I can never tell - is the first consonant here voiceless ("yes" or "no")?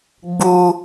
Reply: no